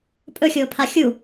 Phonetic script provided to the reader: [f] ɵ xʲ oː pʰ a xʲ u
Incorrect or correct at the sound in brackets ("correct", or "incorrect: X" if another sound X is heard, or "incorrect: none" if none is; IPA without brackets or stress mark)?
incorrect: pʼ